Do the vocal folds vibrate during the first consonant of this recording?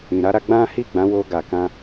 yes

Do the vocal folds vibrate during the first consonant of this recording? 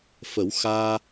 no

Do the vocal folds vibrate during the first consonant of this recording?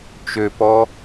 no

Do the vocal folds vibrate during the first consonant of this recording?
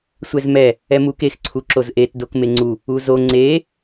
no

